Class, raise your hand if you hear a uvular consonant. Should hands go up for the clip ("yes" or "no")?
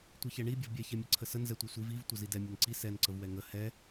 no